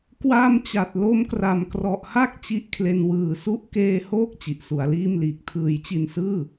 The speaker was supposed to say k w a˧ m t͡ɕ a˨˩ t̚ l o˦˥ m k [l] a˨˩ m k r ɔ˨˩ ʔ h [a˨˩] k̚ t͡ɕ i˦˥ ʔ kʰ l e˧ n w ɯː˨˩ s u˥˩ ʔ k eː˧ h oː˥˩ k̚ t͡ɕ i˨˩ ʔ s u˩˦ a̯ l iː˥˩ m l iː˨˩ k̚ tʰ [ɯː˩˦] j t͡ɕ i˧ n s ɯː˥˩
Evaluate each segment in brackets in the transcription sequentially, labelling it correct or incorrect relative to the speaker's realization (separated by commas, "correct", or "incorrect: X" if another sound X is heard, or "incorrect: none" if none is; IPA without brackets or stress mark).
incorrect: r, incorrect: a˥˩, correct